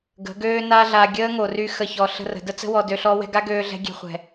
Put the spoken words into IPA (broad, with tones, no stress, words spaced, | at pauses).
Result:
ɡə̤˨˦ ɡøː˦na˦ɮa˧ ɡʲəː˦ŋo˨ry˧ xə˦˨çɔ˧ ɬə̤˧rə̤˨ də˦t͡sə̤˦ wɔ˧dø˧ɬɔ˦ wɛ̤˧ɡa˦ɡøː˧ɮɛ̤˧ ɡʲe̤˧χʷɛ̤˨